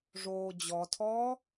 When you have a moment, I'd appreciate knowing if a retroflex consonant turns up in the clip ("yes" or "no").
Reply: yes